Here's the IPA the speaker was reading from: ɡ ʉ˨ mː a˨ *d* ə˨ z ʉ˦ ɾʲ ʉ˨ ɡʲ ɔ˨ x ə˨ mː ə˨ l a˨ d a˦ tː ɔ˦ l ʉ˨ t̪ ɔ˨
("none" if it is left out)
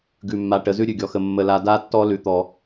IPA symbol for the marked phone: ʈ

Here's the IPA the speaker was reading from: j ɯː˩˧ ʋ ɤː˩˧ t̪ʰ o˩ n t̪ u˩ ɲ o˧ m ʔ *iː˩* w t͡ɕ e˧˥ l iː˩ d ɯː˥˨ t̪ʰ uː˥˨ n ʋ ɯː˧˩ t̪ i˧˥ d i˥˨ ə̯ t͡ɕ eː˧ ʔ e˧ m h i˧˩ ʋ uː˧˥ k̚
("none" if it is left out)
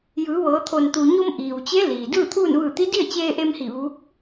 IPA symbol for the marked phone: iː˩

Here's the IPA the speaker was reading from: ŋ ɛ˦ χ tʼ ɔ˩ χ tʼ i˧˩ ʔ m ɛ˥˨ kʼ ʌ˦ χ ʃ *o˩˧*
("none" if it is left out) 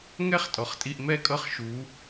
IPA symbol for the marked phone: u˩˧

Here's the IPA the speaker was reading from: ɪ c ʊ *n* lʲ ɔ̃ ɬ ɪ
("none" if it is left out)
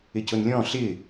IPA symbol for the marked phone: n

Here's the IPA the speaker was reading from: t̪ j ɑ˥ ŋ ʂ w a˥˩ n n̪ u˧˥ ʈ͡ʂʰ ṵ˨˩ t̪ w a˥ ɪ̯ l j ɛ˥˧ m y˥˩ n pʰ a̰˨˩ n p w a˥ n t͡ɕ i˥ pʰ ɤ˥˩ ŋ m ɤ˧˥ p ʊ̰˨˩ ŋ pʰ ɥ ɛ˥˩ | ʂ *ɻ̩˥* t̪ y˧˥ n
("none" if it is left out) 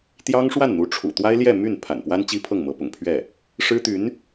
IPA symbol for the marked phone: ɻ̩˥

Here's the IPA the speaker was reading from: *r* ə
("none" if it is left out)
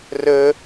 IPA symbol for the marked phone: r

